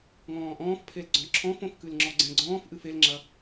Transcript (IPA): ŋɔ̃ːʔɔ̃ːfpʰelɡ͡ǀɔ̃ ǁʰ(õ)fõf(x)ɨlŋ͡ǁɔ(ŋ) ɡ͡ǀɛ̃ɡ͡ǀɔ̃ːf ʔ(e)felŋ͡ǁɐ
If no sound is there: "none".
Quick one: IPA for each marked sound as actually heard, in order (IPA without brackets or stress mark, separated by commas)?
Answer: ɔ̃, k, none, ɨ